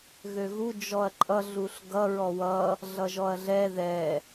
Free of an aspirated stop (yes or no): yes